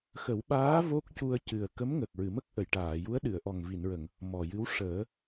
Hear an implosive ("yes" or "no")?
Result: yes